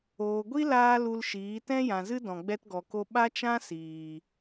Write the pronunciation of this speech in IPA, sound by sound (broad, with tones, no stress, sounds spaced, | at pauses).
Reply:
oː˨ ɡʷ i˦ l aː˦ l u˧ l ʃ iː˨˦ t ɛ̃˦ j ã˨ z ɨ˦ d ɔ̃˨ ɡ͡b ɛ˦ t ɡ ɔ˨ k o˦ ɓ a˦ t͡ʃ ã˦ s iː˨